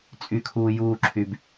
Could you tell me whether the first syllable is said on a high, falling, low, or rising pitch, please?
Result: low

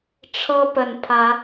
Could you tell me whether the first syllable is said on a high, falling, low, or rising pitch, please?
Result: high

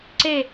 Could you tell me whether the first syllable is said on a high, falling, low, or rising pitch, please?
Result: falling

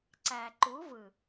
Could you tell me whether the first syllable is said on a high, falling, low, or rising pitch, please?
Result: low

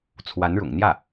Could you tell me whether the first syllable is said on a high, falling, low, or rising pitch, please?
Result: rising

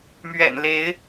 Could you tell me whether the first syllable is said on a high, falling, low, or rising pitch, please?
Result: low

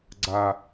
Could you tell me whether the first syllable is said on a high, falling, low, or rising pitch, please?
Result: high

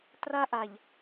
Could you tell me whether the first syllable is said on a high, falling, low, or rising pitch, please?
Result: high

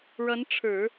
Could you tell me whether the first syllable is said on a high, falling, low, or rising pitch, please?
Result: rising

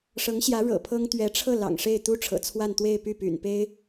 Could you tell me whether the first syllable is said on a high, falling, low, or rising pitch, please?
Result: rising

